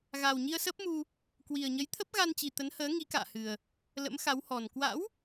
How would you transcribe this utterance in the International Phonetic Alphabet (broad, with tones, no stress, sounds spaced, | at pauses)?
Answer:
ɣ aː˨˩ w ɲ i˧ ə̯ s əː˦˥ p̚ m u˧ | k w i˨˩ ə̯ ɲ ə˨˦ j t̪ʰ ə˦˥ p̚ ɣ a˧ n t͡ɕ i˨˩ t̪ ə˨˦ n h əː˨˦ ŋ i˨˦ k a̰ː˧˨ h ɨ˨˩ ə̯ | l ə̰˧˥ m x a˨˦ w h ɔ˨˩ n k w a̰˧˥ w